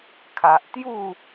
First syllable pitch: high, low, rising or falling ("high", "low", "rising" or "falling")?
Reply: low